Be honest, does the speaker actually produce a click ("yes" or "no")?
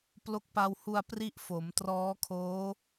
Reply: no